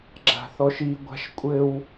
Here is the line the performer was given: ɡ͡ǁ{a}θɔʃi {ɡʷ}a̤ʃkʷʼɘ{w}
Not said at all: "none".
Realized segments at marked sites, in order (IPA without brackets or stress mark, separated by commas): a̤, ɡʷ, w